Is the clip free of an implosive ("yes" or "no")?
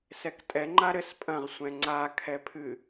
yes